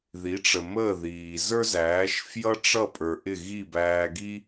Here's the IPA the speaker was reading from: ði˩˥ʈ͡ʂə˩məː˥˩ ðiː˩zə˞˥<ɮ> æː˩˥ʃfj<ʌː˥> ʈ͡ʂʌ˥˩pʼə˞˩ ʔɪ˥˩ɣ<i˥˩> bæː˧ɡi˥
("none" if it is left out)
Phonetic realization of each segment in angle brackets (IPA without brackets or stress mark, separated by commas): z, ʌ˥, i˥˩